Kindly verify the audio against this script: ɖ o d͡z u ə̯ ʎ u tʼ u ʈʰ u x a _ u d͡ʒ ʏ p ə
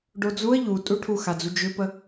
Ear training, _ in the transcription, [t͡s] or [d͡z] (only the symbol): d͡z